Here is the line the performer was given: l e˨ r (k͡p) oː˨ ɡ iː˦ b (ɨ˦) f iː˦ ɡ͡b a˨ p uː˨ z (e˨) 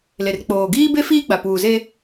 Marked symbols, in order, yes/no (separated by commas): yes, no, no